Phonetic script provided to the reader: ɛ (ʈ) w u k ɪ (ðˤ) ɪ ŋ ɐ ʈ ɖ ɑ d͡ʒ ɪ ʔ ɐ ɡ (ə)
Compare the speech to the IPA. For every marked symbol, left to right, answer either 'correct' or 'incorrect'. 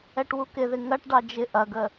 correct, incorrect, correct

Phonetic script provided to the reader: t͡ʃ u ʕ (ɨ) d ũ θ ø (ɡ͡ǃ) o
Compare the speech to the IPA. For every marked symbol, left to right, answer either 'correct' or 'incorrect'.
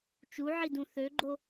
incorrect, correct

